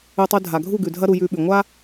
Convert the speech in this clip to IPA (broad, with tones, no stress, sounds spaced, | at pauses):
ʉ˧ tˤ ʉ˧ dʱ a˨ ɡʱ u˦˨ ɡ ʉ˨ dʱ ɐ˦ ɾ u˧ j ʉ˧ ɓ ʉ˨ ŋʷ a˦